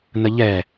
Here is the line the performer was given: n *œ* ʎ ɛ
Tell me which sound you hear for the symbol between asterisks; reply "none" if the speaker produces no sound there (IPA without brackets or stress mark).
ə